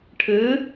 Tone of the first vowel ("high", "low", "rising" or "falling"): rising